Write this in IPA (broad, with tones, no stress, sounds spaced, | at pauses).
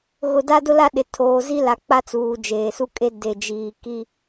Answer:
ɣ ʊ˨ d a˦ d ʊ˦ l a˦ ɗ ɪ˨ tʰ oː˨ z i˦ l a˨ k͡p a˦ t͡s uː˨ d͡ʒ eː˨ s u˦ kʼ e˦ d e˨ d͡ʒ iː˨ k i˦